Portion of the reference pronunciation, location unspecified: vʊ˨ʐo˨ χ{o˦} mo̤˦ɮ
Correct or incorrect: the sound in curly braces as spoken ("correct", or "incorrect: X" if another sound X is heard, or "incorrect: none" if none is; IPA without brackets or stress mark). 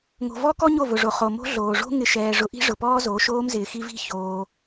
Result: incorrect: o˨